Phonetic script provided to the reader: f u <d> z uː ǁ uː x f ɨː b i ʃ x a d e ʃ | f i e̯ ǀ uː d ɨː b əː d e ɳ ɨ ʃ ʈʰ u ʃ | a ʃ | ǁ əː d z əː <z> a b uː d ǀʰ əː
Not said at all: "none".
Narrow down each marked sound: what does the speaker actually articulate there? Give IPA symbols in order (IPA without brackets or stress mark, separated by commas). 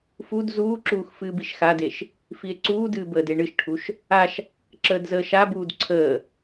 d, ʃ